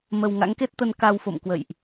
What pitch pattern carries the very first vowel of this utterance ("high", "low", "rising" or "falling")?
low